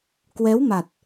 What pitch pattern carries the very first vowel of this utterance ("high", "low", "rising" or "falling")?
rising